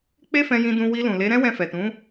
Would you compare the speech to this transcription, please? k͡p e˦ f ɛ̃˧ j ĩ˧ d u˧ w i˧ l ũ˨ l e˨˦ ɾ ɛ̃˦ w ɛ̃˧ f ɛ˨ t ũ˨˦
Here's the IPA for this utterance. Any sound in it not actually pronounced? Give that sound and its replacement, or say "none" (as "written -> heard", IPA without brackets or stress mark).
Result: u˧ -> ũ˧